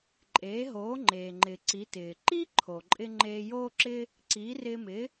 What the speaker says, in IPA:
ǃʼeː˩˥ɦoː˩˥ŋ͡ǃeː˩ŋ͡ǃɪː˩ ǀi˩˥tɪː˩ ǃi˥ǃʰo˩ǃʼɪ˧ ŋ͡ǃeː˧joː˥ǁɪ˥ | ǀiː˩˥rɪː˧mɪː˩˥

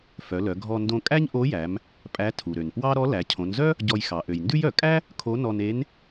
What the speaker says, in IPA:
fœ˩˧lœ˩˧ ɡʱɔ˧ndõ˧kʼæ˥ɲ ʔo˧˥jæ˩˧m | pʼæ˧˥tʰu˩ɾø˩n pwɑ˥ ɾɔ˧˥læ˩˧ cʰõ˩˧nzœ˥ | ɟɔ˧jxɑ˩˧ ʔø˩jndʉ˥jœ˩ kʼæ˥ | kʰo˧˥nɔ˧ne˧˥n

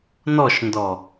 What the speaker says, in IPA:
nɔʃndɔ

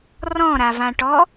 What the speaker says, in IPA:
rɔ̃ɾavãʈɔ

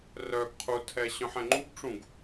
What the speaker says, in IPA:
rœɡ qʰutʰɛ ɕœ̃ħɛ̃ŋ͡ǃuɡʈ͡ʂũɡ

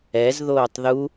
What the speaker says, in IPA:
ɛz ðoːtˤðu

